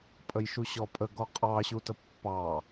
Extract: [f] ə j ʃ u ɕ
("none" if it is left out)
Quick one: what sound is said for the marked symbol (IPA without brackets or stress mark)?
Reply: pʼ